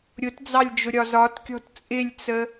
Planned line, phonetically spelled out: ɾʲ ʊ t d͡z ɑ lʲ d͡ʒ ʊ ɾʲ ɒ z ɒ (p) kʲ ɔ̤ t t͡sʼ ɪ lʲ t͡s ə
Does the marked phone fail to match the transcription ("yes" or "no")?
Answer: yes